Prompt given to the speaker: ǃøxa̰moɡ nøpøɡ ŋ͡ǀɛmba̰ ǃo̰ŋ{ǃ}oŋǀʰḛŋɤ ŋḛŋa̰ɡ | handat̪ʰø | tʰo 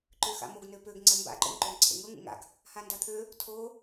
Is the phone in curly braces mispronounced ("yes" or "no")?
no